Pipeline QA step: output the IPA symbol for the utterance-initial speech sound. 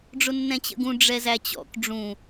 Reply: ɖ͡ʐ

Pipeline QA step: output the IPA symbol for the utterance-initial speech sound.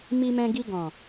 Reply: m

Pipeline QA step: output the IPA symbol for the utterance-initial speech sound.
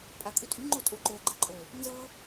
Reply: pʼ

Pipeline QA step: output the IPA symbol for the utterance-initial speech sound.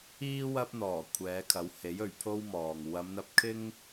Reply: iː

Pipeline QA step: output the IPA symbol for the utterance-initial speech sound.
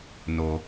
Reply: n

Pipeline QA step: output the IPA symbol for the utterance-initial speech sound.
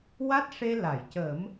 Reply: w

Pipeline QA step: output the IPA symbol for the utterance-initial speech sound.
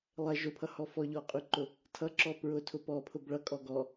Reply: lˠ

